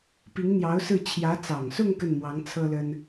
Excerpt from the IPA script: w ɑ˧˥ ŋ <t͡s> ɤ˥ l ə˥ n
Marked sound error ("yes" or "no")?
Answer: yes